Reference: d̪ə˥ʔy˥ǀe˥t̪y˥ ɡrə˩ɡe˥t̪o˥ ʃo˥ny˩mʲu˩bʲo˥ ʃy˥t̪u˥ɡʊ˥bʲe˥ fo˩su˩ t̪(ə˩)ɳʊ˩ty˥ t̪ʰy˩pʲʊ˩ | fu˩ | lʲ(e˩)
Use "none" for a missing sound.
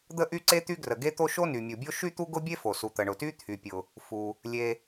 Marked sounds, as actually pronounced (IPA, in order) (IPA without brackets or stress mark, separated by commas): ə˩, e˩